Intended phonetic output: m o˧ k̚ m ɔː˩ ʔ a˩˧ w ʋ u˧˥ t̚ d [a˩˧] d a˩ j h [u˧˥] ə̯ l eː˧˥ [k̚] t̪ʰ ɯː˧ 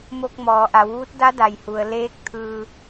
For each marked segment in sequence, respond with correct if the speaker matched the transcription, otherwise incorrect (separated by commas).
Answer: incorrect, incorrect, correct